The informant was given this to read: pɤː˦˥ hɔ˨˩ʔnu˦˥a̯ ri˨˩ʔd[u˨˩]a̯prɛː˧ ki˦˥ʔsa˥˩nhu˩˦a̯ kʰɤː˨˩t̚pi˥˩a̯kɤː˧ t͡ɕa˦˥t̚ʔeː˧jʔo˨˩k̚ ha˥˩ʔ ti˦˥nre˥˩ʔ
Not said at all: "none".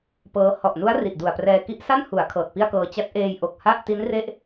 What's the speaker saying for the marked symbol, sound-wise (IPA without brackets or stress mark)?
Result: u˨˩